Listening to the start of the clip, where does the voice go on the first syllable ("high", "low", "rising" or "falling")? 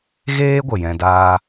high